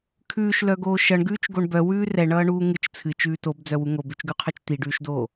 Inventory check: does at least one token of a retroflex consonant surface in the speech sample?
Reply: yes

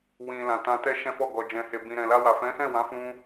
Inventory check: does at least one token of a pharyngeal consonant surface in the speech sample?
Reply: no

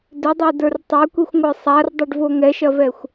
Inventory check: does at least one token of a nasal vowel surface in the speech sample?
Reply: no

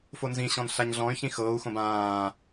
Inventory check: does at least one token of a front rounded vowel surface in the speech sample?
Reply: yes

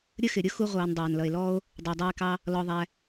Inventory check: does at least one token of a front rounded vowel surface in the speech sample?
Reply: no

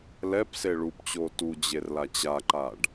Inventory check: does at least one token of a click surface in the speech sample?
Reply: yes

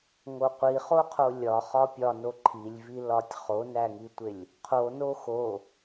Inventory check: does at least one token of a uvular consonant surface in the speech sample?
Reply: yes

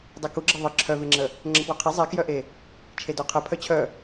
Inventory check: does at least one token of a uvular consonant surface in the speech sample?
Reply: yes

